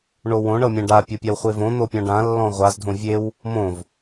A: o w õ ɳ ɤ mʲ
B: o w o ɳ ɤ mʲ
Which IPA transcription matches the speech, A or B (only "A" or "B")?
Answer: A